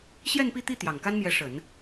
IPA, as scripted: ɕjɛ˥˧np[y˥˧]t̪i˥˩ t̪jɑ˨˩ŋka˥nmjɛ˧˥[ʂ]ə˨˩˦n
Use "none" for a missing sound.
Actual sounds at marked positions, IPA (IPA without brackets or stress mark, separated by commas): i˥˧, ʂ